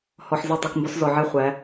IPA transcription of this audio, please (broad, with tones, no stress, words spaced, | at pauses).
hɔ˨ħ zi˦˨tˤy˨kmbɔ˦s zɔ˨ʕe˦ χʷæ˨˦